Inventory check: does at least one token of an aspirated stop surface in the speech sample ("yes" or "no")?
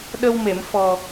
no